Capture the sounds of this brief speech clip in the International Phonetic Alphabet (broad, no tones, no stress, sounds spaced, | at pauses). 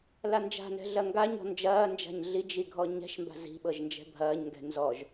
l a n d͡ʒ a̤ n ɛ̤ ɮ ɐ ŋ ɡ a ɲ ɔ̤ n d͡ʒ ɐː n d͡ʒ a̤ ɲ ɮ i d͡ʒ i ɡʱ ɔ ɲ ɛ̤ ʃ m b a̤ z i̤ ɓ ɤ ʒ n d͡ʒ ɛ̤ bʱ ɐː ɲ ŋ ɡ ɛ̤ n z ɔ ʒ